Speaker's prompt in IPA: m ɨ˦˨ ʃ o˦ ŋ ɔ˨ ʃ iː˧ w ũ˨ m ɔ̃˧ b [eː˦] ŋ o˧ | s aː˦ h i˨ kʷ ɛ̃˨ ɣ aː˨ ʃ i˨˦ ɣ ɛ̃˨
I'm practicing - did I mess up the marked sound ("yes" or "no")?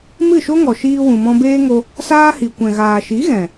no